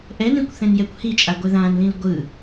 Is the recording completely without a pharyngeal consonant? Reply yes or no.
yes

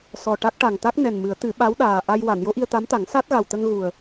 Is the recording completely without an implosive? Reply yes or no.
no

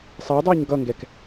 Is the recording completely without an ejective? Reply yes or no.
yes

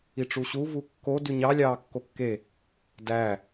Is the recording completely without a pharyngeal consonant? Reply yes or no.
yes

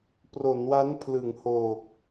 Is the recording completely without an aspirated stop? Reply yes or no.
no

